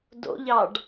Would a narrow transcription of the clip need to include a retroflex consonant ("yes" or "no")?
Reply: yes